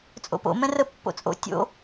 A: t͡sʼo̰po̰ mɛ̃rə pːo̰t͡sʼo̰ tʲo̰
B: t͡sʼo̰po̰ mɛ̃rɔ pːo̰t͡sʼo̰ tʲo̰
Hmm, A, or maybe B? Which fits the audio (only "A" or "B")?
A